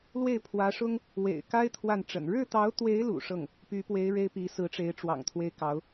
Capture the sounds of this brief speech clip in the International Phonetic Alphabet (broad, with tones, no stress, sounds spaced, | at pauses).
l w e˥˩ ɪ̯ pʰ w ä˧˥ ʂ ʊ˥ ŋ | w ḛ˨˩ ɪ̯ k a˥ ɪ̯ t̪ʰ w a˥˩ n ʈ͡ʂ ə̰˨˩ n ɻ ɻ̩˥˩ t̪ ɑ˧˥ ʊ̯ t̪ w e˧˥ ɪ̯ l ṵ˨˩ ʂ ɤ˥˩ ŋ | p y˧˥ p w e˧˥ ɪ̯ ɻ e˥ ɪ̯ p i˧˥ s ɹ̩˧˥ ʈ͡ʂ e˧˥ ɪ̯ ʈ͡ʂ w ɑ̰˨˩ ŋ t̪ʰ w e˥ ɪ̯ k ɑ˧˥ ʊ̯